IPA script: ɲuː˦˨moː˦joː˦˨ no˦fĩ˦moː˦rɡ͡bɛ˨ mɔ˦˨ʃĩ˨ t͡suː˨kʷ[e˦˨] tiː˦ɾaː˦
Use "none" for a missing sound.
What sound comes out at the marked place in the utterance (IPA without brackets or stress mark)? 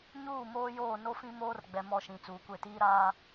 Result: e˦˨